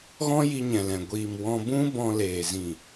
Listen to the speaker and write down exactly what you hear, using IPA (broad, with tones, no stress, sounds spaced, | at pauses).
ɣ ɔ̃˦ j i˧ ɲ ɛ̃˨ l ɛ̃˨ ɡʷ iː˨ m w ɔ̃˧ b ũ˦ b ɔ̃˧ l eː˨ z ĩ˨